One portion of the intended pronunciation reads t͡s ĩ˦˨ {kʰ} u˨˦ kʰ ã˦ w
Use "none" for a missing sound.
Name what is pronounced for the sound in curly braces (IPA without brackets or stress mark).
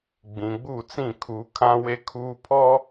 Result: kʰ